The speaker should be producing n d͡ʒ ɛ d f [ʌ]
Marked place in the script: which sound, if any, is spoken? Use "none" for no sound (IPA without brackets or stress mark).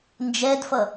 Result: ʌ